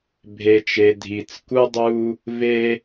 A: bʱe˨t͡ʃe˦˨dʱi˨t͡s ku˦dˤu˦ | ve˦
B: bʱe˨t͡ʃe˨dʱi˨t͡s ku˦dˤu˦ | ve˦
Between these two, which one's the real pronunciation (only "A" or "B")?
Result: B